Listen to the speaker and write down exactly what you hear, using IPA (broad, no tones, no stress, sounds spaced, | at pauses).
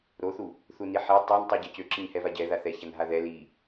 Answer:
ɾ o θ u | θ u n i ħ i tˤ a n tˤ u ɟ a c ø ǁ ə ɲ h ɛ v a ɟ ɛ ð a θ ɛ ç a n ɦ a ð ɛ l i